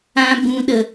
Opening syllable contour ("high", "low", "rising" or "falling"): high